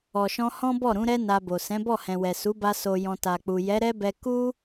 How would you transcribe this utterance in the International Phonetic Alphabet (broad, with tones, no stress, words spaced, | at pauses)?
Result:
ɔ˨ʃɔ̃˧ hɔ̃˦bɔ˦˨ɾũ˨˦ɾɛ˦ na˧bo˨ sɛ̃˨˦bɔ˦˨ hɛ̃˨wɛ˨su˨˦ba˧ so˨jɔ̃˨ ta˨k͡pu˨ jɛ˨˦ɾɛ˦bɛ˧ ku˦